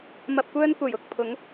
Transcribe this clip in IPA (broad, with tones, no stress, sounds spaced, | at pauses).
m ɐ˧ p̚ kʷ œː˥ n kʷ ɐ˨˩ j ʊ˨ k̚ pʰ ʊ˨˥ ŋ